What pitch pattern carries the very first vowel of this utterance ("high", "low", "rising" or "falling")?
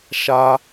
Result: high